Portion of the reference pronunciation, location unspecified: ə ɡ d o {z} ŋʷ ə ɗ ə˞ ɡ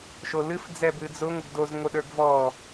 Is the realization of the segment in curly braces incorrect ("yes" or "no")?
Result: no